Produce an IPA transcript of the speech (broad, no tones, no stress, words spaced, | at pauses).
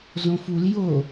zõful jo